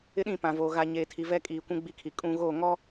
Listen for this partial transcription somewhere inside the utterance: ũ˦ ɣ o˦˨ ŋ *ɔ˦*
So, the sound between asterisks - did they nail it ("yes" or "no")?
yes